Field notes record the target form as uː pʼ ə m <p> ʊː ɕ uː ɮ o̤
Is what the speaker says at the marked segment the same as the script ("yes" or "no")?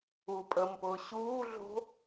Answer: yes